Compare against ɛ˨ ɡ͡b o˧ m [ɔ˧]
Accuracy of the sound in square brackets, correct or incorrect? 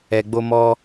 correct